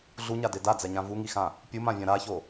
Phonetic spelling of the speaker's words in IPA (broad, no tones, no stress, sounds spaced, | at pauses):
ɮ u ɲ a d e d a d͡z ɛ ɲ ã v u ŋ i x ã | pʲ u m ã vʲ ã ɾ a ç o